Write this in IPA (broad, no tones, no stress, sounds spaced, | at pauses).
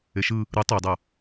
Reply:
e ʃ ɯ | ɾ ɯ tˤ i dˤ ʌ